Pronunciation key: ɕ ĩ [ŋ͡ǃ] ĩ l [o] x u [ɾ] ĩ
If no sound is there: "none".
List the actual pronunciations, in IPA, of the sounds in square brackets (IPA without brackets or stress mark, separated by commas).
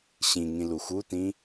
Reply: ŋ, u, t